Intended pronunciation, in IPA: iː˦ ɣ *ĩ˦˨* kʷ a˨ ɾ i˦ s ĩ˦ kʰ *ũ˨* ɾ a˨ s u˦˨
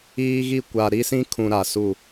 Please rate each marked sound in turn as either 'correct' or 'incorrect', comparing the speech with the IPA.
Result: incorrect, correct

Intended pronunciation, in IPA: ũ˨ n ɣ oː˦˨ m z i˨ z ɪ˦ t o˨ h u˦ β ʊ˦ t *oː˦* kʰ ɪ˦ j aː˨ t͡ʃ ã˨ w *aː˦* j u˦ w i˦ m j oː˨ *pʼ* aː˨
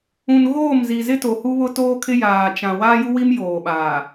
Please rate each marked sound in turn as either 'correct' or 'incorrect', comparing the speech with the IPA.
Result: correct, correct, incorrect

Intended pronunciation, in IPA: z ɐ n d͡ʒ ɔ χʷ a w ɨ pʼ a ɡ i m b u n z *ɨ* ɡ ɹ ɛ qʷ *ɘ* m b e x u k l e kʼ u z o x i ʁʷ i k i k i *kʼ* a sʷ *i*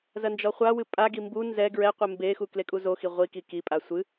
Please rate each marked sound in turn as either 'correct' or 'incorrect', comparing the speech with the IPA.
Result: incorrect, correct, incorrect, incorrect

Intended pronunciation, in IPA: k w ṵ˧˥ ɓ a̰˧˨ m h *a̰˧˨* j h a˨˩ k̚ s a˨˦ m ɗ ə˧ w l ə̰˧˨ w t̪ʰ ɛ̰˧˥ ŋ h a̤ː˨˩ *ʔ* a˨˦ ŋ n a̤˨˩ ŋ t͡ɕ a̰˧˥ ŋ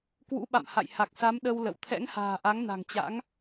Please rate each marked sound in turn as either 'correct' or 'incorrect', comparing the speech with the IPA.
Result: correct, correct

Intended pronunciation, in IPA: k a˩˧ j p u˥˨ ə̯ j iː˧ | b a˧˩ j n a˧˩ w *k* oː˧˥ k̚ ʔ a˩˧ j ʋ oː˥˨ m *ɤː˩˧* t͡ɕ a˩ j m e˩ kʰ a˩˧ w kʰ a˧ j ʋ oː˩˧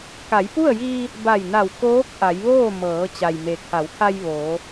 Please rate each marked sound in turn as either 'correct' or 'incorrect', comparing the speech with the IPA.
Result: correct, correct

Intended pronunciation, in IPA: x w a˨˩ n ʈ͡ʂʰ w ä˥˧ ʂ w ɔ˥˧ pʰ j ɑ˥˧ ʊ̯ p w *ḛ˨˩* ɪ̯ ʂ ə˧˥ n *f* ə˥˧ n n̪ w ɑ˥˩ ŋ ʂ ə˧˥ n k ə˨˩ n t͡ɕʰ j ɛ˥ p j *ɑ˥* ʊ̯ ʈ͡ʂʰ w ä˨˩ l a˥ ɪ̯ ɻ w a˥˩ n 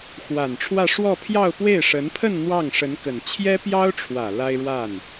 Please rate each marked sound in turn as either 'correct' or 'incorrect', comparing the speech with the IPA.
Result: incorrect, incorrect, correct

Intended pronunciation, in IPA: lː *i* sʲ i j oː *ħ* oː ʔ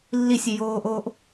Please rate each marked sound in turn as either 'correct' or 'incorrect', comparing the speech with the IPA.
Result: correct, incorrect

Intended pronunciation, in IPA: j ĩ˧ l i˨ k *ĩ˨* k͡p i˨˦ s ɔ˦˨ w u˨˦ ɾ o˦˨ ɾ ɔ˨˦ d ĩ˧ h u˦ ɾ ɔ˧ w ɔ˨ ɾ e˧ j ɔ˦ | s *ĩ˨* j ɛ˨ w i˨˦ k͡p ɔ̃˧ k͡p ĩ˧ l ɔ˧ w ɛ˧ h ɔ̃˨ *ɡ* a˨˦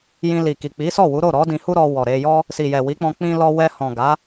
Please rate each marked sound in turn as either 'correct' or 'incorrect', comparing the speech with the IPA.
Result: incorrect, incorrect, correct

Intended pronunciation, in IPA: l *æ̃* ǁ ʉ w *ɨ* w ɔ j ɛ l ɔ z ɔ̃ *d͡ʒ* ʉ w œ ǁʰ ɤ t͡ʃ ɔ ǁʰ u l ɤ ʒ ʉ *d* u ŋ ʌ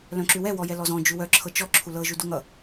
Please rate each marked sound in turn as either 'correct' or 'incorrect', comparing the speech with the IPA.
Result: incorrect, incorrect, correct, correct

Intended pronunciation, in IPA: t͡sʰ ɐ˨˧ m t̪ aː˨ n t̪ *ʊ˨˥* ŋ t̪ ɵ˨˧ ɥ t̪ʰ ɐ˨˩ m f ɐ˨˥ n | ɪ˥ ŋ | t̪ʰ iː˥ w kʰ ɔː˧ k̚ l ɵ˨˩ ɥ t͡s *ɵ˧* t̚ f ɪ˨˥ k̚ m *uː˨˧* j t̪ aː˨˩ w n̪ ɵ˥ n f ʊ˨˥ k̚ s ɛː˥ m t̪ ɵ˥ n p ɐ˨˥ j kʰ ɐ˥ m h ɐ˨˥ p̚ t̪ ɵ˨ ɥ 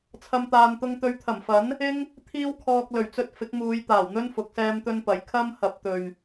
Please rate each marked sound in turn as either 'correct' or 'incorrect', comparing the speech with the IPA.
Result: incorrect, correct, correct

